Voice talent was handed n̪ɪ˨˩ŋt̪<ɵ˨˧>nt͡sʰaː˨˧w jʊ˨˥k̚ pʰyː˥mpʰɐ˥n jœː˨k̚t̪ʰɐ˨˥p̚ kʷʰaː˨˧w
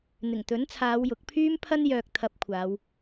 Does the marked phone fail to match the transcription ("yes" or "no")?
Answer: yes